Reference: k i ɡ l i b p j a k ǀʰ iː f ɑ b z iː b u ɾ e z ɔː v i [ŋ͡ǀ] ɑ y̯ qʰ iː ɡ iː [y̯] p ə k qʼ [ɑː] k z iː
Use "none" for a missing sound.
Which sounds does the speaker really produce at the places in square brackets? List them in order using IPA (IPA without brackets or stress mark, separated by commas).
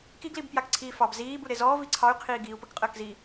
ǀʰ, u̯, əː